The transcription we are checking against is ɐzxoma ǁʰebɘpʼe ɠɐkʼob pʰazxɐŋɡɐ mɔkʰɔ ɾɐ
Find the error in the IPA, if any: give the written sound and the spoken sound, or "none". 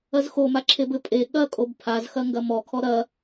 none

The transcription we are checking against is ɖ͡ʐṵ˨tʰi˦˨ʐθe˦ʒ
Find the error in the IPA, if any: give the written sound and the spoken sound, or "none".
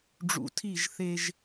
ʐ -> ʒ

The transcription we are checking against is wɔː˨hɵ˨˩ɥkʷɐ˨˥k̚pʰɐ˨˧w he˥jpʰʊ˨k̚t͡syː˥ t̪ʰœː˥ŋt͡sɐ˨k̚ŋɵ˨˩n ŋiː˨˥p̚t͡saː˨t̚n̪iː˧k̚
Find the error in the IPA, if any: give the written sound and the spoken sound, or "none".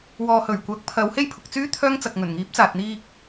none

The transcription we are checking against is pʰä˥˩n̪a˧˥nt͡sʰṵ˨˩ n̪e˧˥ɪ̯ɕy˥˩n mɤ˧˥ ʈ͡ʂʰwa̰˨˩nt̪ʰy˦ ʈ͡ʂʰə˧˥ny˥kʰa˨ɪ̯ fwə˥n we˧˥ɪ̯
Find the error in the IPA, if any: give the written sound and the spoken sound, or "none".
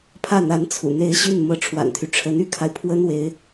f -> pʰ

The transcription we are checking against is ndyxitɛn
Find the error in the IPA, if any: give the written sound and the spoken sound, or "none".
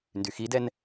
t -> d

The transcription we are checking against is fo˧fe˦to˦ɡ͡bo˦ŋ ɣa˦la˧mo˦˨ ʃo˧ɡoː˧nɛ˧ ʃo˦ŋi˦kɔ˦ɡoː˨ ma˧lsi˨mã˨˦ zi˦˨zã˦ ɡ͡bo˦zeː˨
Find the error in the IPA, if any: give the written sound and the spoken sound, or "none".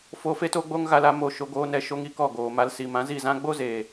ɔ˦ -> ɔ˦˨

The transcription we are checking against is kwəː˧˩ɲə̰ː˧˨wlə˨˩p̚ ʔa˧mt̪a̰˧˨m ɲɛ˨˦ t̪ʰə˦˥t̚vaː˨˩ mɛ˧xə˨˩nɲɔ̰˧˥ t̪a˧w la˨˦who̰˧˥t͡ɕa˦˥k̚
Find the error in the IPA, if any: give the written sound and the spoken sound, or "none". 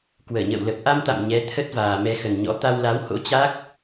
none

